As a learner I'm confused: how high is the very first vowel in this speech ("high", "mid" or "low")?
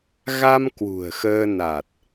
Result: low